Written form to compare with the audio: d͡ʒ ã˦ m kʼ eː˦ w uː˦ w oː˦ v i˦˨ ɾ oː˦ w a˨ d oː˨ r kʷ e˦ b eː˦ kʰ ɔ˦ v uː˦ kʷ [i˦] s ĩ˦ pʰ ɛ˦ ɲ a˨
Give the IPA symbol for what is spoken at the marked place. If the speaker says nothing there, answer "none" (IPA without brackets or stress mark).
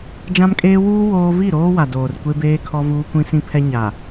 ĩ˦